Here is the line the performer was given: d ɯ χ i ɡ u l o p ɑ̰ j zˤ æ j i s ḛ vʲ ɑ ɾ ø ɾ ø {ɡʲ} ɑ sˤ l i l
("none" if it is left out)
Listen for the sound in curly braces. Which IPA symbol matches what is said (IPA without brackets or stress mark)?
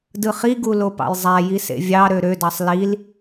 d